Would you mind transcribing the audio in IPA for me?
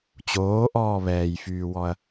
t͡ɕ oː ʔ ɔː β ɛː j f yː w ɔ ɐ̯

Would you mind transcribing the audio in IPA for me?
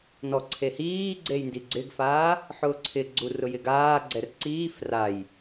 n ɔ ǀʰ e h iː ɡ͡ǀ e j n d i ɡ͡ǀ ɪ ɡ f aː | ħ ʊː ǀʰ ɪ ɡ͡ǀ u r ʊ j ɪ ɡ aː ɡ͡ǀ ɛ r ǀ iː f r a j

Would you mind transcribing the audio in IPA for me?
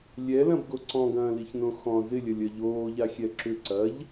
lʲ ɛ l ɐ̃ b ɡ o ǀ ɔ̃ ɡ ɐ̃ː l i ç n õ x ɔ̃ z ɪ lʲ ɐ lʲ ɐ ʎ oː ʎ a xʲ ɛ ǁ ʏ ǀ ɐ ʎ

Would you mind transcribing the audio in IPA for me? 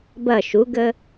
b ɐ ʃ u ɡ ə

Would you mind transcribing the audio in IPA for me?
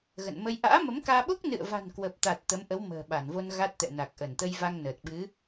ɣ ə̰˧˨ n m ə˧ j ʔ a̰ː˧˥ m ə˨˦ m k aː˧ ɓ o˦˥ k̚ n ɨ̰˧˨ ə̯ v a̤˨˩ n k w ə˨˩ p̚ t̪ a˨˩ t̚ t̪ ə˨˦ m ʔ ə˨˦ w m ə̤ː˨˩ ɓ a˧˩ n v o˧ n ɣ a˦˥ t̚ t̪ ɛ̰˧˨ n a˨˩ k̚ ʔ ə˧˩ n t̪ ə˧ j v a˧ ŋ n əː˨˩ t̚ ɓ ɨ˨˦

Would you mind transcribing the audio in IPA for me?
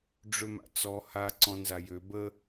ɖ͡ʐ ø m a̰ t͡s ɔ h a ǀ ɔ̃ n z a j ø b ə

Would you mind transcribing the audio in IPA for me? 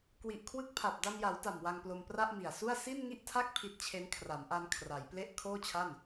k w i˨˩ ʔ kʰ w ɯ˦˥ k̚ pʰ a˨˩ p̚ d a˧ m j a˩˦ w t a˨˩ m w a˧ ŋ p l o˧ m p r a˥˩ ʔ m i˨˩ a̯ s u˥˩ a̯ s i˥˩ n ŋ i˥˩ ʔ tʰ a˥˩ k̚ pʰ i˦˥ t̚ t͡ɕʰ e˦˥ n kʰ r a˩˦ m ʔ a˧ n kʰ r a˩˦ j p l e˥˩ ʔ kʰ oː˥˩ t͡ɕʰ a˥˩ n

